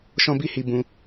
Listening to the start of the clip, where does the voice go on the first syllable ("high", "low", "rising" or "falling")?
high